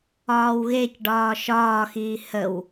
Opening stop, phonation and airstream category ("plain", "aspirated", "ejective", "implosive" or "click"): plain